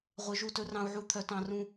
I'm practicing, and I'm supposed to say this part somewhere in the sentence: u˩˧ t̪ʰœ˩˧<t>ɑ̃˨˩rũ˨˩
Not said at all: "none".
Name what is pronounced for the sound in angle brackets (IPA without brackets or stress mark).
t